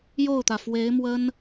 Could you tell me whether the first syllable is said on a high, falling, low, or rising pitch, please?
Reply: falling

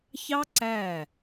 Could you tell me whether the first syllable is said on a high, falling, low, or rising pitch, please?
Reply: high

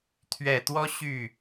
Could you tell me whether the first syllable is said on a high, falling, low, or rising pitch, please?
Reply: low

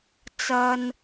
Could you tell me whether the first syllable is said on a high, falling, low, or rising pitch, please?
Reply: low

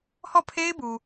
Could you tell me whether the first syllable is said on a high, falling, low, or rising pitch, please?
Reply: falling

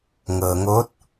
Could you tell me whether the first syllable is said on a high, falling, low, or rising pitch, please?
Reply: low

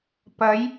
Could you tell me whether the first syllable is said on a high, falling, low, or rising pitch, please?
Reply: rising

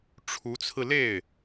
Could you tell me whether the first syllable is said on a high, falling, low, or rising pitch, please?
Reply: rising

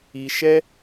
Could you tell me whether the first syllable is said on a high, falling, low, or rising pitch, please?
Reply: low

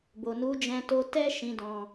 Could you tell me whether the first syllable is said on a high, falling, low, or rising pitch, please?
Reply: low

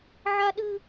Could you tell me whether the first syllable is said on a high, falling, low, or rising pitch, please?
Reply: high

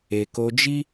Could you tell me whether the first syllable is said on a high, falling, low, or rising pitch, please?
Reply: low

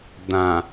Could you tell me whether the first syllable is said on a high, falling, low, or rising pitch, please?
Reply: low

